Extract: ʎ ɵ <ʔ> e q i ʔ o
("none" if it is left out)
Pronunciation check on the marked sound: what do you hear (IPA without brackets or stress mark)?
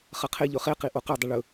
χ